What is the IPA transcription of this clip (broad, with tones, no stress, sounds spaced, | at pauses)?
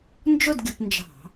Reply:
n d͡ʒ ʊ˥˧ d ɡʲ ʊ˧˩˧ p n d͡ʒ ɑ̤˧˩˧